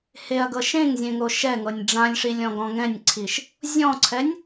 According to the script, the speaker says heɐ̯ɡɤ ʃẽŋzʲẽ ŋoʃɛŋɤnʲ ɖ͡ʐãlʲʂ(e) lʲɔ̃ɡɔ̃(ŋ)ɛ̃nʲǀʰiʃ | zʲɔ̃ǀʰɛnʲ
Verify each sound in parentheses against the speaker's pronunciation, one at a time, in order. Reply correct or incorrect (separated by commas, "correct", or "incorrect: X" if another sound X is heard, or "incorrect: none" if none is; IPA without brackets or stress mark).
incorrect: i, correct